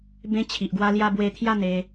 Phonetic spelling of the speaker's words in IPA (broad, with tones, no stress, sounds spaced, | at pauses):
b ẽ˧ t͡ɕʰ i˨ ʔ ɡ w a˧ l j a˧ b w e˧ t̪ʰ j a˥˧ n̪ e˧